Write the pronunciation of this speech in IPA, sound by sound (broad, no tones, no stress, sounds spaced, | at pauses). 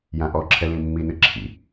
j ã ʔ ɔ ǁʰ ɛ l ĩ mː i n ɨ ǁʰ ḭ